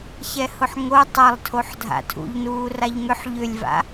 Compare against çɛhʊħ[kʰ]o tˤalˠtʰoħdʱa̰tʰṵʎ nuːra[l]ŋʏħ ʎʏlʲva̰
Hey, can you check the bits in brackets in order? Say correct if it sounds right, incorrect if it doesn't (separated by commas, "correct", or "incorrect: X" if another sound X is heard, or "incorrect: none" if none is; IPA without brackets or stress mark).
incorrect: ŋ, incorrect: ʎ